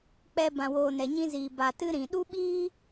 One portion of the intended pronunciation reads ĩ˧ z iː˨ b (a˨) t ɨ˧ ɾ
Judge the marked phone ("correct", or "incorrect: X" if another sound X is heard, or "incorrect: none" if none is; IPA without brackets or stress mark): correct